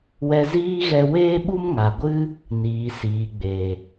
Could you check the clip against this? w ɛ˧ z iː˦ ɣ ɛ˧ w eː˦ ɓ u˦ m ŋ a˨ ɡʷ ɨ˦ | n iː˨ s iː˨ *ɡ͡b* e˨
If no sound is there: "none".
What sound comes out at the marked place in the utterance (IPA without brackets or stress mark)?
ɡ͡b